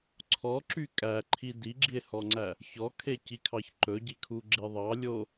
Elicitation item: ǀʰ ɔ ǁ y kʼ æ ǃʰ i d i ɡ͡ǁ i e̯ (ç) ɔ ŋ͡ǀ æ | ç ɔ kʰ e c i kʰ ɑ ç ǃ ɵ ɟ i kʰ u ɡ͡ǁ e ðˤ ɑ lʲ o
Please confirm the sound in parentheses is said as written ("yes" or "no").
no